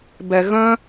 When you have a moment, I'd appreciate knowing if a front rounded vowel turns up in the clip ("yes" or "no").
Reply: yes